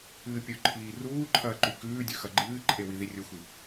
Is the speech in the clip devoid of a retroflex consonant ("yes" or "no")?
yes